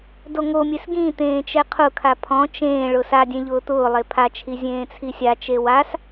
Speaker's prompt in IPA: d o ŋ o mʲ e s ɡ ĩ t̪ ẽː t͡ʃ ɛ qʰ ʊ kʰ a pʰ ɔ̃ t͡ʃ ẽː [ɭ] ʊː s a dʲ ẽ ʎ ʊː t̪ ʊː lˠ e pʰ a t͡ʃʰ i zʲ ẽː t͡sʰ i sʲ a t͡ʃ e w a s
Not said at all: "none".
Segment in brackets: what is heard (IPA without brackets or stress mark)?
ɭ